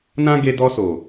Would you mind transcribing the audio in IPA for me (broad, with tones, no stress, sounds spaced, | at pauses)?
n ã˧ ɡ e˧ d ɔ˧ s o˨